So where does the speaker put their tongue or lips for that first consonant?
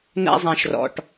tongue tip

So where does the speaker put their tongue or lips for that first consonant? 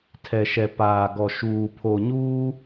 tongue tip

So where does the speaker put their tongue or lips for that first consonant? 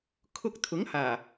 velum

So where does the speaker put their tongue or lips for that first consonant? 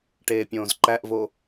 retroflex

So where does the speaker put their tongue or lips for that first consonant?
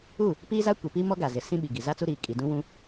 lips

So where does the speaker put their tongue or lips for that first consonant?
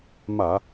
lips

